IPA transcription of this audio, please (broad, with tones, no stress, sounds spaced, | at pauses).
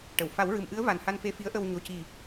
ʈ ə˨˩˨ w f a˨˩˦ w ɹ ɨ˨˩ m ʔ ɨ˧˥ ə̯ v a˨˩ n h a˧ n f e˧ f i˧˥ ə̯ ʔ ə˧ w ɲ o˨˩ c i˨˩